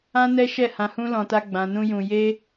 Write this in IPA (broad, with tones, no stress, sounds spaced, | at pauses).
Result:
ã˦ n ɛ˦ ʃ ɛ˦˨ h ã˧ h ũ˦ l ɔ̃˧ t a˦ ɡ͡b ã˧ n ũ˦ j ũ˧ j e˦